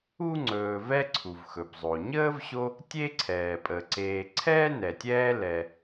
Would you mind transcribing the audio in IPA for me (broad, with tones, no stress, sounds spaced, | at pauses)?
u˥ ŋ͡ǀ ɵː˨ v ɛ˥ ǀʰ u˩ v x ɵ˩ b zˤ o˩ ɲ əː˥ v ɕ o˦ | tʲ e˥ ǀʰ ɛː˩ pʼ ə˩ ǀ eː˨ ǀʰ ɛː˥ n ɛ˩ tʲ ɛː˦ l ɛ˩